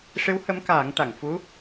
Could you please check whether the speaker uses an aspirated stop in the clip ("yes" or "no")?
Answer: no